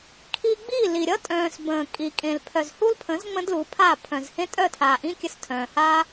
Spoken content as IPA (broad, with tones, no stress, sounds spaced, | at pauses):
kʰ i˧ ɡ͡b i˦˨ l i˨ ɾʲ ʌ˦ tʼ œ̃ː˨ s b ə̃ː˨ kʼ i˨ kʼ ẽ˨ l pʰ œ˨ z h u˦ l pʰ ə̃˨˦ z ŋ͡m ə̃˦ d l u˨˦ pʰ a˦˨ pʰ œ̃˨ z h ẽ˦ tʼ œ˦˨ tʰ aː˨ ʔ ĩ˦ kʲ ə˧ s tʰ œ̃ː˨ h aː˦